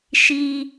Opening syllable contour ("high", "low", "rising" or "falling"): high